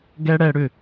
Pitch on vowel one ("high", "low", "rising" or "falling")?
high